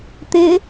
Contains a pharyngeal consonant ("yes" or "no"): no